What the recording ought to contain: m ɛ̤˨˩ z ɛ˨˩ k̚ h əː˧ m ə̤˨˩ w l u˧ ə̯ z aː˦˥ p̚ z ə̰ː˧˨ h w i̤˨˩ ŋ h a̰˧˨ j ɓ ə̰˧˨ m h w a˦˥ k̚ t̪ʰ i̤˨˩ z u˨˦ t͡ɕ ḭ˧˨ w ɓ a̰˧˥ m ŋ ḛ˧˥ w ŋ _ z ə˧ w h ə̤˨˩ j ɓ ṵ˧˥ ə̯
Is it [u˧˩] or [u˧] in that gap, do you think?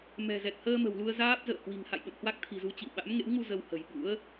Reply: u˧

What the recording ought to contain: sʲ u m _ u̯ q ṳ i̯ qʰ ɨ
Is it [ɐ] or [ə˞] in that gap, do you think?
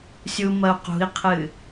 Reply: ɐ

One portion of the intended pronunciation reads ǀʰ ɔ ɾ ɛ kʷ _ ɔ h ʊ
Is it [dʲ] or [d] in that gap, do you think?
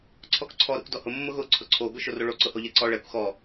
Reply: d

